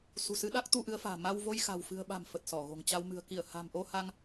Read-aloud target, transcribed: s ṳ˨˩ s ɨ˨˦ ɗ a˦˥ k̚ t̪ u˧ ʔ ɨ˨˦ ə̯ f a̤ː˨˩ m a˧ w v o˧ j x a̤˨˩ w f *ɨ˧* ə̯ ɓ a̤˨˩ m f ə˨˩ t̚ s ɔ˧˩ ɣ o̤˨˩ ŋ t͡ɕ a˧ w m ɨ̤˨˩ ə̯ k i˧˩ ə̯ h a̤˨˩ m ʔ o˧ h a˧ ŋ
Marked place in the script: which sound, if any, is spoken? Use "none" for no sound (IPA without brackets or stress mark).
ɨ̤˨˩